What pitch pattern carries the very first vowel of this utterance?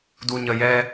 low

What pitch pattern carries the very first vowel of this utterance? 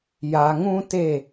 low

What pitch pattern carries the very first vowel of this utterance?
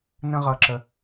high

